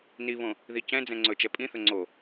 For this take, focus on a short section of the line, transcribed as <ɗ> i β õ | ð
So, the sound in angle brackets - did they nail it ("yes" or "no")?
no